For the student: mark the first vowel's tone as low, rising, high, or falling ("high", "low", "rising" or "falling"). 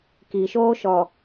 low